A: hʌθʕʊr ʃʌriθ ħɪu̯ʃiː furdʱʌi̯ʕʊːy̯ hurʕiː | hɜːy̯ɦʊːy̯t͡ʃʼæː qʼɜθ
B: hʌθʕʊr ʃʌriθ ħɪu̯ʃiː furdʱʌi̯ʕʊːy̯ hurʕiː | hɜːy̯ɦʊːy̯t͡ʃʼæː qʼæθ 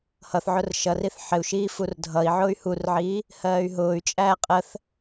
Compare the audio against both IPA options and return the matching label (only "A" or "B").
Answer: A